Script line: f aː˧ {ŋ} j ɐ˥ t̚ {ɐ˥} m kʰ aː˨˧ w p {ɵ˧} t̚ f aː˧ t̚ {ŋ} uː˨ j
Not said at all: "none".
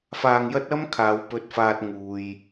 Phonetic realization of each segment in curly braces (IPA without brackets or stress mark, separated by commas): ŋ, ɐ˥, ɵ˧, ŋ